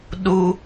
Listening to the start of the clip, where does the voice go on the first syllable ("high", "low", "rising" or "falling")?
high